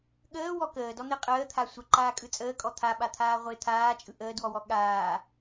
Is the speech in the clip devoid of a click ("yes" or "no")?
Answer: no